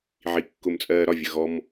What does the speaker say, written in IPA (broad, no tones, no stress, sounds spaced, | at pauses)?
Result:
ʕ i kː ʊ m t͡sʼ ɜː ɾ ɒ vʲ ə ɣ ɔ m